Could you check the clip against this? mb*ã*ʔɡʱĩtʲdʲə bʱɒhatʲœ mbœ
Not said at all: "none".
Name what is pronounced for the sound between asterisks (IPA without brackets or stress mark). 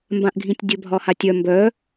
ã